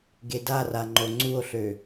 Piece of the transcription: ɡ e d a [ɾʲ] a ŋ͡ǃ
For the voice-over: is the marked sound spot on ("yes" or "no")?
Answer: no